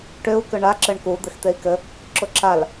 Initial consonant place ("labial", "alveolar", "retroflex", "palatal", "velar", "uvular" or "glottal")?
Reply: retroflex